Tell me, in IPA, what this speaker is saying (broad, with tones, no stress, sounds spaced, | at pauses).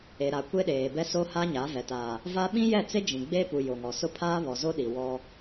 e˨ ɾ a˨ kʷ e˦ ɗ eː˨ b ɛ˦ s o˦ h a˦ ɲ a˨˦ v ɛ˨ t a˨ | v a˦ ɓ ĩ˦ j ɛ˦˨ t͡s e˦ d͡ʒ ĩ˨ ɡ͡b eː˦ p u˨ j o˨ ŋ ɔ˨ s ʊ˦ pʰ aː˦ β ɔ˨ z o˦ ɗ i˨ w ɔ˦